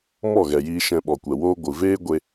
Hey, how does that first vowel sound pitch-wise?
falling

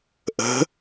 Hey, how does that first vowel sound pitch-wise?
rising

